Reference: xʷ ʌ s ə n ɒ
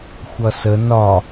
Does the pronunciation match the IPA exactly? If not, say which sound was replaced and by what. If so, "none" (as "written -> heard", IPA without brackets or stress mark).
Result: none